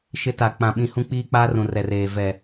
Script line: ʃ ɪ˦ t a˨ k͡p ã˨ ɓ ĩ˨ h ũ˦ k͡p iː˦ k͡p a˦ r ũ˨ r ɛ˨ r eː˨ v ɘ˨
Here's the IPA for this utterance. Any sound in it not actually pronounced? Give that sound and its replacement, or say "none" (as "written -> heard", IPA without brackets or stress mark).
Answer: ɘ˨ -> ɛ˨